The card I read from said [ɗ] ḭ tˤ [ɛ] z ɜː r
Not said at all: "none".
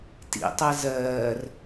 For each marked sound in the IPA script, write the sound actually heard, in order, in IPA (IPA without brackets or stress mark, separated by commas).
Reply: t, ɛ